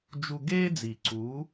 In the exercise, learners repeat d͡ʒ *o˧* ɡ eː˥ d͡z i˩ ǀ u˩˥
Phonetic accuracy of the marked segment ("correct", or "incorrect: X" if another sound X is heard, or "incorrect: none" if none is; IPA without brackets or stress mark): incorrect: u˧